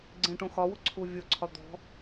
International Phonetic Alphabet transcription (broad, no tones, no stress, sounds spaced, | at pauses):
ɡ͡ǀ ẽ ʈ õ x ɒ w ʊ ǀʰ u vʲ o ǀʰ ɒ d̪ ɔ̤